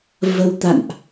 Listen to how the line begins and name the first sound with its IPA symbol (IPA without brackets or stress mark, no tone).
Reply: v